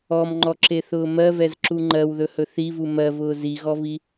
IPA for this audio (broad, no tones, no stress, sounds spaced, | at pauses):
ɔ m ŋ͡ǃ ɔ ǁ e θ ʊː m ɜ v ɛ z ǁ u ŋ͡ǃ ɜ w ð ɵ h ɵ θ i v u m ɜ v ʊː z i ɣ ɔ v i